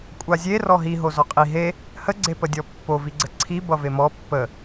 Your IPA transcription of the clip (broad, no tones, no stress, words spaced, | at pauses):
kʷʼazʲe rɔɦi ɦozɔqʼi ɦe | hə ɡ͡ǀepədʲɔpːo viɡ͡ǀəǀʰi bʌvemɔ pːə